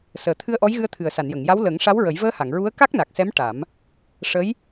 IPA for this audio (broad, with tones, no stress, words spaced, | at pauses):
səː˨˩t̪ʰɨ˧ə̯ʔɔ˧˥jɣɨ˧ə̯ t̪ʰɨ˨˩ə̯sa˨˩˨njə˨˩˨ŋja˧˥w lə˨˩˦ŋ ʂa˧˥w ɹə˨˩˦j vəː˧ha˨˩˨ŋ ɹu˧˥ə̯ka˦˥k̚na˨˩k̚sɛ˧˥m ʈa˨˩˦m | ʂə˧˥j